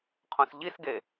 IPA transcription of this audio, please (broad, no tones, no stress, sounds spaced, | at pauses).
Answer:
qʰ õ s ʎ i s ɡ e